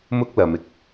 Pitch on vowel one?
high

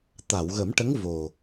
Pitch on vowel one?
low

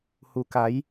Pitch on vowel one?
low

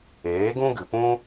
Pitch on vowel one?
rising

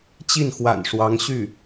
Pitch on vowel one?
falling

